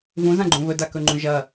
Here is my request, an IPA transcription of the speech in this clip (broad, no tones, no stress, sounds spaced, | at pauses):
v ũ z ã ɡ͡ǃ ũ β ɵ d a k ɵ ŋ͡ǃ ũ ʒ ɐ